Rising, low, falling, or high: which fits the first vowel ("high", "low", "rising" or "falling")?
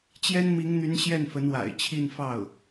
high